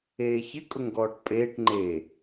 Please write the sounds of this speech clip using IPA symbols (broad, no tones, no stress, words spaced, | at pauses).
eːçɪkʼʊŋɡɔːʈ pʼeːʈ ŋ͡ǃe